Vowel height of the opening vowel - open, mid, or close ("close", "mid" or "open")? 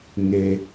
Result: mid